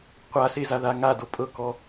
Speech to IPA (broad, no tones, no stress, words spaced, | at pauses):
qʷase zaðaŋado pʼɤkɔ